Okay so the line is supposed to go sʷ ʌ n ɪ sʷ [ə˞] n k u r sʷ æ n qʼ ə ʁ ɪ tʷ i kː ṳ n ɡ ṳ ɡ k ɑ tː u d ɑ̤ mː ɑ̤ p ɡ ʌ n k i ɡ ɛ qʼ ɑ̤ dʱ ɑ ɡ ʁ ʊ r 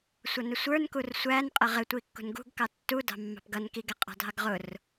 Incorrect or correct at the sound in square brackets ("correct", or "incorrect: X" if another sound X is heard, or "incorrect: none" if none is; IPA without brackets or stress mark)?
correct